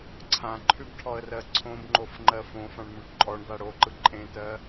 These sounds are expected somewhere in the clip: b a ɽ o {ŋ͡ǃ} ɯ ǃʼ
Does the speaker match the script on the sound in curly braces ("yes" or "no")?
no